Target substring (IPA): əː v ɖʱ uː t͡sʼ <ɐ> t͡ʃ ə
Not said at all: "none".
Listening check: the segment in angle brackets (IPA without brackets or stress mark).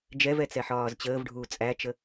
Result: æ